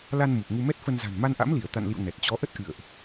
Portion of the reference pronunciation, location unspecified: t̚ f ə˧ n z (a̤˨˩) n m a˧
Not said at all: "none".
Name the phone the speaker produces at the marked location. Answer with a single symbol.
a̤˨˩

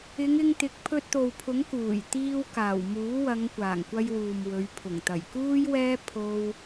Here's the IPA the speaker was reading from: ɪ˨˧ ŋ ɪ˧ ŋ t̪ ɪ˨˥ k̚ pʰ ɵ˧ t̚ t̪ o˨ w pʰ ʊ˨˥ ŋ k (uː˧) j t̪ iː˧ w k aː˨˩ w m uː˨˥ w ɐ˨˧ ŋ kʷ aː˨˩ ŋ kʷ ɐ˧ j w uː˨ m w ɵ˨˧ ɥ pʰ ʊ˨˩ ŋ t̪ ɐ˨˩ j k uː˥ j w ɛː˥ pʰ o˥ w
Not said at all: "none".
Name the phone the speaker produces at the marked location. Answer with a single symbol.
uː˨˩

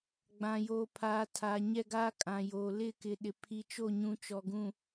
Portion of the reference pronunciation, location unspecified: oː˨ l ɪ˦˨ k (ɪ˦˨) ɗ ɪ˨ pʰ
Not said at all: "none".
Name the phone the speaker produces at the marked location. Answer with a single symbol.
ɪ˨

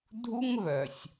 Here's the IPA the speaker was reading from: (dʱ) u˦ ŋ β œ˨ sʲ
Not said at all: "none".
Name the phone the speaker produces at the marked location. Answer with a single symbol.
dʱ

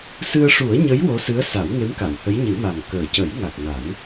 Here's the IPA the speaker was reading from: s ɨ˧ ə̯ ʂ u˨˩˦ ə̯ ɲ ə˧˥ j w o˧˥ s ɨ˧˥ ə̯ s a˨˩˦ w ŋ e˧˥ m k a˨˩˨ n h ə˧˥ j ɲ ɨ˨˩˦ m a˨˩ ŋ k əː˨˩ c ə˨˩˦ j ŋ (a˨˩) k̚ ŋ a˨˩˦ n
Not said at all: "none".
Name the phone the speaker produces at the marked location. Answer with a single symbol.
a˨˩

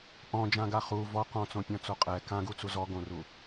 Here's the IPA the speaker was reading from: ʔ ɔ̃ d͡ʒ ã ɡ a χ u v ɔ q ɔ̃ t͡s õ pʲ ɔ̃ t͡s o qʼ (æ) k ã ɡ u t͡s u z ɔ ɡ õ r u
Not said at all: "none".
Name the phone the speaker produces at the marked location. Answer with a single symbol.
ɛ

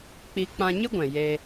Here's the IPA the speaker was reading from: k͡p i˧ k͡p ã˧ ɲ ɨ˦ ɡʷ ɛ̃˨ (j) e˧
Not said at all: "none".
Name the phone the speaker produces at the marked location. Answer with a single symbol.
j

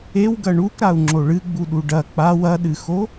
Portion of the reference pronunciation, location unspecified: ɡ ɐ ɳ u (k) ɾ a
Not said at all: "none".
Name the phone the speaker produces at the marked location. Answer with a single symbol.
k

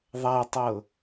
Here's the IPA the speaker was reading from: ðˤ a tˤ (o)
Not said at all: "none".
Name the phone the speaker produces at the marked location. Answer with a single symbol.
ɤ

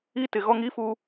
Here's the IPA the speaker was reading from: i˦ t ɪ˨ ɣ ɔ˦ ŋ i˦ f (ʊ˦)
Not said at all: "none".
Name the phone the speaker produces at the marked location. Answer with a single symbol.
u˦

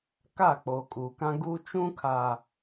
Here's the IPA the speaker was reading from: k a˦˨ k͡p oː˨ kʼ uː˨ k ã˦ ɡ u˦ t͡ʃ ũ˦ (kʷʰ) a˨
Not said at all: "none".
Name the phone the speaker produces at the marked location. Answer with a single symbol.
kʰ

